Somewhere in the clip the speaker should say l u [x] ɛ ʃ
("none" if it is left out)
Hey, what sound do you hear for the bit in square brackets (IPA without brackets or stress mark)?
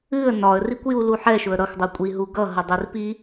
ħ